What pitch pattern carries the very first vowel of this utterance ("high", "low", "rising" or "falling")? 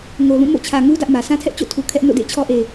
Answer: low